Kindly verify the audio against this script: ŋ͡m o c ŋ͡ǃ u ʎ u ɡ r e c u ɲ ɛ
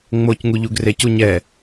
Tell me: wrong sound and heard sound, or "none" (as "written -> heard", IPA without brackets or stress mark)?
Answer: ŋ͡ǃ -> ŋ